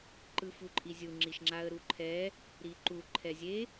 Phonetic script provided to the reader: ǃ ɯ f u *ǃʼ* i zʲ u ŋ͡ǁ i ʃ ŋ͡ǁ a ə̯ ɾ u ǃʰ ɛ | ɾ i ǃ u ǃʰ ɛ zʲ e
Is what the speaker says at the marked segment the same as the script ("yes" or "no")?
yes